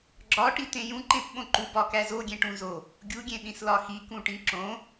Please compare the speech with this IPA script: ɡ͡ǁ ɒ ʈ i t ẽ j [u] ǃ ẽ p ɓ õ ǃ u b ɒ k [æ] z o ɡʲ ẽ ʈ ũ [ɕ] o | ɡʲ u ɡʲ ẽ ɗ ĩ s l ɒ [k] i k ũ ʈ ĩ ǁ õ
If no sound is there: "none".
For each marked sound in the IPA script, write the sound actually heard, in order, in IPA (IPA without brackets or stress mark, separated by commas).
ũ, æ, z, x